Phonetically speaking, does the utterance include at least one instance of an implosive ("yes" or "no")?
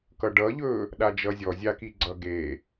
yes